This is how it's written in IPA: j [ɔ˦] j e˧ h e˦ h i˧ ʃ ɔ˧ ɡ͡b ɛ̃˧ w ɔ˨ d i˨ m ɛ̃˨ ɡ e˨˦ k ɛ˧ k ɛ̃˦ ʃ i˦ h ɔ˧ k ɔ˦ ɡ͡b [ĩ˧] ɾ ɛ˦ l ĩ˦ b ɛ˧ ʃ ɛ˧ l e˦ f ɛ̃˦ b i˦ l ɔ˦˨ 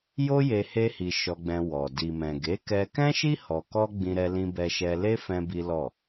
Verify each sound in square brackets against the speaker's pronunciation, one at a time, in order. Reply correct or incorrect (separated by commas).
incorrect, incorrect